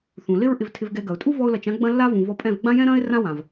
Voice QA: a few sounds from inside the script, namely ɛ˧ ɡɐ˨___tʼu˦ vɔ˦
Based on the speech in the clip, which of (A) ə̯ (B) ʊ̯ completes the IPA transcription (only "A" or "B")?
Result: B